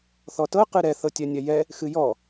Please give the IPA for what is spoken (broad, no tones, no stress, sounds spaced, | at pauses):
θ ɔ t ɤ q ɨ ɾ ɛ θ ɤ tʲ ɛ nʲ ɛ j ɛ | x ɨ j ɔ